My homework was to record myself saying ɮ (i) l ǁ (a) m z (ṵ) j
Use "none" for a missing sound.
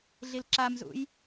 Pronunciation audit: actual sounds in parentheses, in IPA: i, a, ṵ

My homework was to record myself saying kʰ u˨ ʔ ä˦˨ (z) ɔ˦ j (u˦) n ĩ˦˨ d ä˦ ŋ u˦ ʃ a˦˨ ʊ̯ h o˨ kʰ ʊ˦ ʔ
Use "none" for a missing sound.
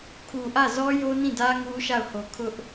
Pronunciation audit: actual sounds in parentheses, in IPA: z, o˦

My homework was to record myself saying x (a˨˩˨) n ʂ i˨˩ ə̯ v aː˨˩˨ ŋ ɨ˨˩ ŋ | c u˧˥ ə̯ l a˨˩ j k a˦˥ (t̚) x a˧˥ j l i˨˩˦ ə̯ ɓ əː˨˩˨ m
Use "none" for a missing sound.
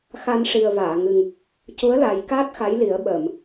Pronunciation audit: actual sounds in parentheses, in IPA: a˧, t̚

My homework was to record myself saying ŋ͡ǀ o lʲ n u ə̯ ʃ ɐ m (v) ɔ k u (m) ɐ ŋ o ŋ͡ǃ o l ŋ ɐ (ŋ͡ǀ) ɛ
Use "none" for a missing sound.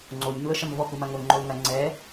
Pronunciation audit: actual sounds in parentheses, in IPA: v, m, ŋ͡ǀ

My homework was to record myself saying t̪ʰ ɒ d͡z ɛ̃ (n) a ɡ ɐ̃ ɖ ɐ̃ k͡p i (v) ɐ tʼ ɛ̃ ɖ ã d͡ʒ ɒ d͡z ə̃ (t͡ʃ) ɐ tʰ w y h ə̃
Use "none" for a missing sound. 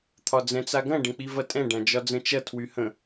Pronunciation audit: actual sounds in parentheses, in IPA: t͡s, v, t͡ʃ

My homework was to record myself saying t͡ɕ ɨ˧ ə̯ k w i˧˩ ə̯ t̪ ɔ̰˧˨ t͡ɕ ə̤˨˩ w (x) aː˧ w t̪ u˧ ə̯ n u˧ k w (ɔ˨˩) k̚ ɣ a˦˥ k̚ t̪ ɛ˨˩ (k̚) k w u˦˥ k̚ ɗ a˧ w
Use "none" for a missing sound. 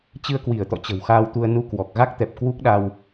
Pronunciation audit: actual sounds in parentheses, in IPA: x, ɔ˨˩, p̚

